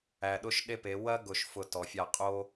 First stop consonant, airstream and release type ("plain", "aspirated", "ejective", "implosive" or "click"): implosive